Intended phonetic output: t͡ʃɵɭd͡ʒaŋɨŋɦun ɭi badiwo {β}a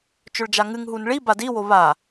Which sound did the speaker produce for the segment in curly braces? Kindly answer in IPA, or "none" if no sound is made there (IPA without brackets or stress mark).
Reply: β